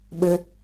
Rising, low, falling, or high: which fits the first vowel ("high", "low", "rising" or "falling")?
high